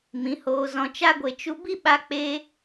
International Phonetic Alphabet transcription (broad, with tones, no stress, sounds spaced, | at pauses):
m ĩ˨˦ h oː˧ z ɔ̃˧ t͡ʃ a˦ ɡʷ e˧ t͡ʃ u˦ b i˦ ɓ a˦ k͡p e˦